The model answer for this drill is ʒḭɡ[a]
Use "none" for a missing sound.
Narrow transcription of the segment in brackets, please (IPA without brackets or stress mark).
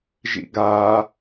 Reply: a